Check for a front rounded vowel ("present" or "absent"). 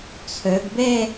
present